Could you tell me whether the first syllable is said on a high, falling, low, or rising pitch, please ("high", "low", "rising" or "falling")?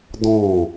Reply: falling